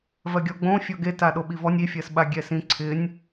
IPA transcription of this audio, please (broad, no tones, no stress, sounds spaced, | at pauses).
v ɜ ɡʲ ɔ ɡ͡b õ fʲ ɔ ɡ e t a ɗ o ɓ i v ɔ nʲ i fʲ ɜ s ɓ a ɡʲ ɛ s ĩ ǀʰ ɪ nʲ